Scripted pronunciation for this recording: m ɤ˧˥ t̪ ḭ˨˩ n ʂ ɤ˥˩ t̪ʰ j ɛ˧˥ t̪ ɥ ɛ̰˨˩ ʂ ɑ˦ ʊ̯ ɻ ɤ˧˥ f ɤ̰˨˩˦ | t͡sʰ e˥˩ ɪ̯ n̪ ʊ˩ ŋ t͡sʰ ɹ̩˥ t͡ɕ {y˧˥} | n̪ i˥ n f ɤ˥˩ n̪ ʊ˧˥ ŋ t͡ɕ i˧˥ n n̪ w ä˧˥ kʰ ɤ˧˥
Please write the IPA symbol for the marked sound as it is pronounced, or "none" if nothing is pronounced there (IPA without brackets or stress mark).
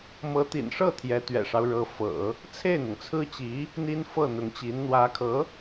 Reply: i˧˥